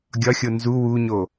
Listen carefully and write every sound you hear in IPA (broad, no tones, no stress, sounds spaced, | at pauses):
ɡʲ ɒ xʲ o n z u w u ɲ o